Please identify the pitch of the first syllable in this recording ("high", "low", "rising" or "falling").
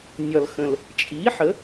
low